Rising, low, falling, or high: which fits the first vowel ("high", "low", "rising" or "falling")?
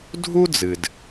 high